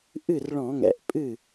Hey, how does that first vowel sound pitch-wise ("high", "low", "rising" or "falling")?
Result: falling